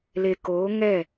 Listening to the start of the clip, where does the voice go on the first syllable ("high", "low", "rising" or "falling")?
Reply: low